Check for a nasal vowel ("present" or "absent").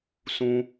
present